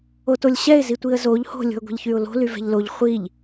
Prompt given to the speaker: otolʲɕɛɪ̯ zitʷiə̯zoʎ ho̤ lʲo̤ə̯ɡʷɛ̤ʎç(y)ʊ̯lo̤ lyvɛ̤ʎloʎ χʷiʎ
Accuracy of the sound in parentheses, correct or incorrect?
correct